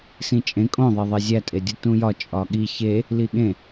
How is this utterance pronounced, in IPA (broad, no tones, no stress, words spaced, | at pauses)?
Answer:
sĩt͡ʃʼẽ kʼõðˤeðˤe zʲætʼedʲu tũjɒ t͡ʃʼɒɠi çe | liɠẽ